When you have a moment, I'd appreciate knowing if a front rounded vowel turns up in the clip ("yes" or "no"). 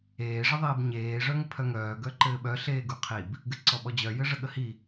yes